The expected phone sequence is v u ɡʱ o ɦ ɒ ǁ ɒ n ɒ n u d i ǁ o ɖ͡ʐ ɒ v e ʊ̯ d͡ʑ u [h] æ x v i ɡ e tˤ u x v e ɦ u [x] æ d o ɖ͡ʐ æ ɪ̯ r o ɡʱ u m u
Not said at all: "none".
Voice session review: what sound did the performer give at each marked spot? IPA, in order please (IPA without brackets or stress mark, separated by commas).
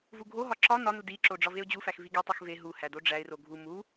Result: f, h